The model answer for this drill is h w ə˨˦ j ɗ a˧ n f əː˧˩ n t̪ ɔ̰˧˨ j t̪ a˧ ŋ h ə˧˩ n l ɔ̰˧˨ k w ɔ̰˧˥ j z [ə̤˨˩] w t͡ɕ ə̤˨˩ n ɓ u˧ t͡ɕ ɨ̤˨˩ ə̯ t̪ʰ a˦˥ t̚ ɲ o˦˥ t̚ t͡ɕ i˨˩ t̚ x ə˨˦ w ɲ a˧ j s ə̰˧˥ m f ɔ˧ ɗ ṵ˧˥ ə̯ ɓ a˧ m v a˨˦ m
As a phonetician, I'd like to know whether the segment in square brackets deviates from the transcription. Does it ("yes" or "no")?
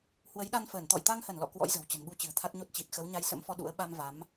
no